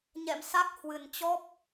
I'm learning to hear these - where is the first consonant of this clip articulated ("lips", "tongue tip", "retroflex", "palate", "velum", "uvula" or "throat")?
palate